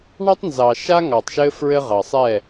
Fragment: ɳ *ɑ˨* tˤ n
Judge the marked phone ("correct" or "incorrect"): incorrect